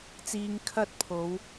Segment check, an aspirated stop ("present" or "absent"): present